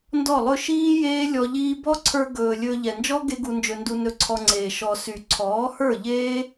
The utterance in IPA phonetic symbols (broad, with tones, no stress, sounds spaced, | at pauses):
n d ɔ˦˨ lˠ ɵ˦ ʃ iː˦ j eː˦ lʲ ɔ˧ ʎ iː˦ b ɔ˦ ǀʰ ə˞˧ ɡ ɵː˨ lʲ ɵː˧ ʎ ɛ˨ n d͡ʒ ɔ˦ ɡ e˦ ɡ u˧ n d͡ʒ ɵ˧ n d u˧ n ɵ˧ ǀʰ ɔ˧ ŋ͡ǀ eː˨ ʃ ɔ˨ s y˨ ǀʰ ɔː˨˦ h ə˞˦˨ ʎ eː˦